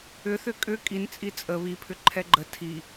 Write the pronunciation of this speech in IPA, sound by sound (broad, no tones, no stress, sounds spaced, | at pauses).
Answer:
ʏ θ ʏ kʼ ʏ kʼ i n t͡sʼ i t͡sʼ ə β i pʰ ʏ ǃʰ ɛ ɡ͡ǃ ə tʰ i